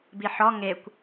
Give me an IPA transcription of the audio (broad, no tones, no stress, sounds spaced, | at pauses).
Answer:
b i ħ ɔ ŋ e kʷ